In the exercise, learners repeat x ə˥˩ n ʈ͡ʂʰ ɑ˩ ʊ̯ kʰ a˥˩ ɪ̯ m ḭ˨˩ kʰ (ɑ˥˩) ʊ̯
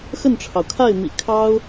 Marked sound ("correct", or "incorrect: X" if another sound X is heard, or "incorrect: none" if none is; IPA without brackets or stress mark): incorrect: ɑ˥